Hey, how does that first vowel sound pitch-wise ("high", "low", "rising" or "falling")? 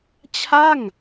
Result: falling